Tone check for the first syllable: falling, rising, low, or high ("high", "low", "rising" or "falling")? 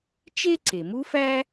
high